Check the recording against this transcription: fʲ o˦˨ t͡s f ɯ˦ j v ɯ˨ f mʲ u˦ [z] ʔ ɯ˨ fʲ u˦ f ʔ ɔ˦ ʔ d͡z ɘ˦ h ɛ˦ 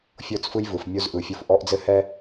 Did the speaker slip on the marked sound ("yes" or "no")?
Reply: no